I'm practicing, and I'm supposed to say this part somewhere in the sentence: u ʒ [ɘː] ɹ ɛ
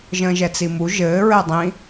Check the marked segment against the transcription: correct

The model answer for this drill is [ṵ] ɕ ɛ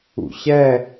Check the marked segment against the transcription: correct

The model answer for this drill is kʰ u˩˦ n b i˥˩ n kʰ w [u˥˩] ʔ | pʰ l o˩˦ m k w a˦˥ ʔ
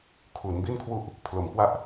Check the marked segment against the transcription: correct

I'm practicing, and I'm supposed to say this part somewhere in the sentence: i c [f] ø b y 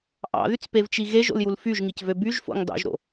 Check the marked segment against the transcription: incorrect: v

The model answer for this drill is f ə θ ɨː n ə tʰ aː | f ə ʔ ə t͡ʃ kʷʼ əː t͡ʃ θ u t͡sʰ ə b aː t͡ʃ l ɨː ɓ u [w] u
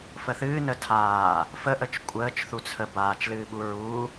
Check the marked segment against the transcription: incorrect: ɹ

